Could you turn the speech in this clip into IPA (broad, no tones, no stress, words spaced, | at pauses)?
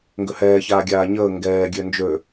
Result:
ŋɡʏhɛːçaː ɡʲaːɲəː ŋɡɛː ɡʲønd͡ʒø